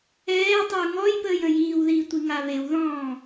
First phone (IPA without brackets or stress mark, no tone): ɛː